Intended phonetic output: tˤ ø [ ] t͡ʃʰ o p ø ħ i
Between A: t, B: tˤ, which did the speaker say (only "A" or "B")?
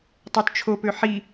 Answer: A